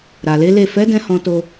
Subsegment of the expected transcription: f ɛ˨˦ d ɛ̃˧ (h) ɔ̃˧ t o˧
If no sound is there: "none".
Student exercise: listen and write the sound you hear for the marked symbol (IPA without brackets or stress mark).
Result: h